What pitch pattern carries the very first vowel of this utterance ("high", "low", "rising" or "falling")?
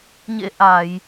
rising